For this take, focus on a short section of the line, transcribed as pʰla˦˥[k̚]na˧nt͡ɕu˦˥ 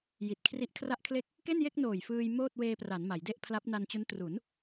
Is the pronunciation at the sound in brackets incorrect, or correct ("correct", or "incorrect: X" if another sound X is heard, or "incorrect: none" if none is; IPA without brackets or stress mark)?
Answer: incorrect: p̚